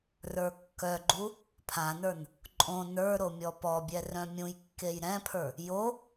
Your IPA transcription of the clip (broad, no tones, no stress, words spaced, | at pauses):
rə˞kːœɡ͡ǃu | pʰãnə˞n | ǃʼõ nə˞ɾo mʲɔpɔbʲɛ rœ̃mʲũjkːej ɾɛ̃pʰə˞ | jo